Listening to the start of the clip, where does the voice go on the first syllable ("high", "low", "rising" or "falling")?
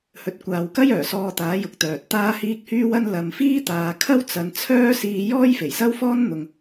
low